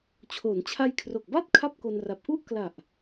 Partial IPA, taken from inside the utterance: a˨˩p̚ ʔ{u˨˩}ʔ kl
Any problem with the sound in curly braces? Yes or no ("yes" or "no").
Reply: yes